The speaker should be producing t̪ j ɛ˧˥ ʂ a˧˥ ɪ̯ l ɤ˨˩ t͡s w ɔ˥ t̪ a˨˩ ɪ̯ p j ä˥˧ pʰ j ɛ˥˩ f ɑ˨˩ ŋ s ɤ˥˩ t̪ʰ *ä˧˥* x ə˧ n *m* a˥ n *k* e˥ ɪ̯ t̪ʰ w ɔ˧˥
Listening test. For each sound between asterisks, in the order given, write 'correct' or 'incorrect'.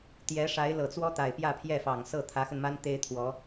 correct, correct, incorrect: t̪

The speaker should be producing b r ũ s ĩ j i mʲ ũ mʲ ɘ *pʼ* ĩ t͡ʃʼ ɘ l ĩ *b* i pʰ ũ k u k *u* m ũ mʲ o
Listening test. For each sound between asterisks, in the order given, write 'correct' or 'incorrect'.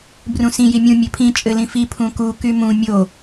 incorrect: pʰ, incorrect: f, incorrect: y

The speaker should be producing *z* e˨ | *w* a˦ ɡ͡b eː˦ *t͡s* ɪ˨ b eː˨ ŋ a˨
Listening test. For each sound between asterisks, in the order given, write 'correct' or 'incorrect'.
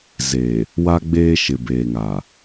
correct, correct, incorrect: ʃ

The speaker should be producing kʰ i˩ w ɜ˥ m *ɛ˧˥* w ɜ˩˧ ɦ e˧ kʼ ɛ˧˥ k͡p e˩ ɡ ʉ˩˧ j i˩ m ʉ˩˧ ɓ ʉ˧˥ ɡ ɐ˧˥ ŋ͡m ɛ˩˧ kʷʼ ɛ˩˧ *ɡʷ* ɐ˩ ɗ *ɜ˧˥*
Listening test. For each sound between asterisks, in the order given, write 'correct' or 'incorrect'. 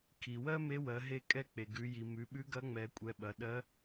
incorrect: e˧˥, incorrect: ɓ, correct

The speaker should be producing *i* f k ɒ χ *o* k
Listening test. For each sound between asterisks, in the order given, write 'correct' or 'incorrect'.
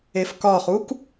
incorrect: e, incorrect: u

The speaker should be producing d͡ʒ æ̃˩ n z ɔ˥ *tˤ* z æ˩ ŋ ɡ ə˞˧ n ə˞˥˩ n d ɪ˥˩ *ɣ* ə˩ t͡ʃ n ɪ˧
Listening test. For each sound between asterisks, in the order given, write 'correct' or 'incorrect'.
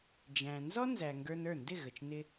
incorrect: n, correct

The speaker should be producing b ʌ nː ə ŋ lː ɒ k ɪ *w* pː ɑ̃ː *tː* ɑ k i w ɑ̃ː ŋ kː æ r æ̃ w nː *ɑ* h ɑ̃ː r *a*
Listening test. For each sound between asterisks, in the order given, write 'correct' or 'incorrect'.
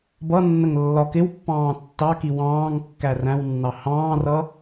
correct, correct, correct, incorrect: ʌ

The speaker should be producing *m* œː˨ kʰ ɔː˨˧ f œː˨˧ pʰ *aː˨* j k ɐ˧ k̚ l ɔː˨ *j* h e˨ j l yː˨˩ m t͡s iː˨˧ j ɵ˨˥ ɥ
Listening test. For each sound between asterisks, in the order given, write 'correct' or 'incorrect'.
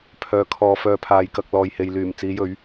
incorrect: pʰ, correct, correct

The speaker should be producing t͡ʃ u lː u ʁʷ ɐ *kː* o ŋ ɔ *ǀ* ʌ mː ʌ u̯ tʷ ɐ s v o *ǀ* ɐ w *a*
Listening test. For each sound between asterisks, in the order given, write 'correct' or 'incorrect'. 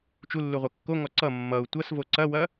correct, correct, correct, incorrect: ɐ

